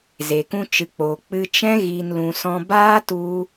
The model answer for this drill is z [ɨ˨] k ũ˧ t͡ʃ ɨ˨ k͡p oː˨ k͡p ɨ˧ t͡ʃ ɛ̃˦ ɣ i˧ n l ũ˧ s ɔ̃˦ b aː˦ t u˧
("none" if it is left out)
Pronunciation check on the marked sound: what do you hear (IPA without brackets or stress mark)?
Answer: e˨